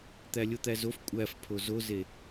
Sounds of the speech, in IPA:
t̪ælʲot̪æzof kʷʼæf pʰozoze

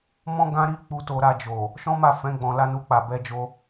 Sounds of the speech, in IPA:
mɔ̃˦ ɡã˦ɾi˦ k͡pu˧ to˧ɾa˧d͡ʒo˨ | ʃɔ̃˦ma˦˨fɛ̃˨˦ ɡ͡bɔ̃˧la˦ nu˧k͡pa˨bɛ˧d͡ʒo˧

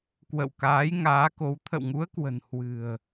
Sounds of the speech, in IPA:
kwə̰˧˨wkaː˨˦jŋaː˨˦ko˨˦w t̪ʰə̰˧˨wŋu˨˦ə̯kwə̤˨˩n hwɨ̤˨˩ə̯

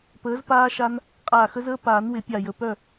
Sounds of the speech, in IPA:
pəː˨˥zpaː˦ʃa˦n | qʼaː˧˩xə˦zəː˦ paː˨˩˦nwɪ˨˩˦pʲa˧˩jə˧˩ pœ˥˨

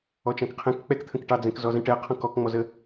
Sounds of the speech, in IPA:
ɔt͡ʃɑ̃kqʰɛ̃k k͡pɛkt̪ʰə̃kʈɑ d͡zɛ̃kzɔzə̃ʈɛ qʰɔ̃kɔkŋ͡mɔzə

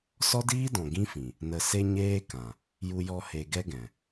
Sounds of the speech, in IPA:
sɔ˦diː˦dɔ̃˨ ɡĩ˦fĩ˨ | nə˨se˧ ɲeː˦kã˨ | ju˧jɔ˧ he˧ɡɛ˦ɡɛ̃˨

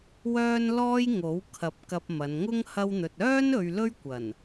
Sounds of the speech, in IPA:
wœː˥nlɔː˥j ŋo˨˥w kʰɐ˨˥p̚kɐ˧p̚ mɐ˨˧nŋʊ˥ŋ hɐ˥wn̪ɵ˧t̚ œː˥n ɵ˧ɥlɵ˥ɥkʷɐ˨˩n

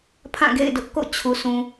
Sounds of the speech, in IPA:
pʰã˦˨ɡḛ˦˨ɪ̯dʊ˦ʔ ko̰˦˨t͡ɕʰu˨sʰũ˨

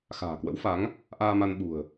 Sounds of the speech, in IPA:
xa̤ː˨˩kwə̰˧˥wfa˨˦ŋ | ʔaː˧ma˧nɓṳ˨˩ə̯

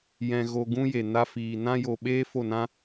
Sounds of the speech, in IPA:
jɛ̃˧ɣo˧ ɡũ˦je˨ na˧fiː˨ nã˦jo˧ ɓeː˦fo˦˨nã˦

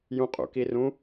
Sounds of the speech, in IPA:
jũqʼṵkirũ

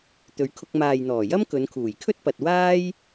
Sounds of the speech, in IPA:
t̪ɵ˨˧ɥkʰʊ˧k̚ maː˨jn̪ɔː˨˩jɐ˥m kɵ˨˧nkʰuː˨˩jkʰɵ˥t̚pɐ˨t̚ waː˥j

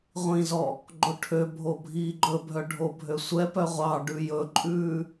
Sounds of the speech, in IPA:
ʁʷĩzɔ | ɡ͡ǃoʈʰøbʱo bʱiːɡ͡ǃɵbʱœ ɖʱobʱøsʷɛpœ ʁʷɑɖʉ jɵǃʼʉː

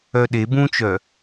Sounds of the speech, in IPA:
œɗe bũt͡ʃœ

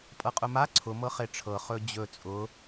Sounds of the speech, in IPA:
pʼɤqʼʊma ǀʰʊ mɤχeʈ͡ʂʰɤ χɵd͡ʑɵ t͡sʼʊ

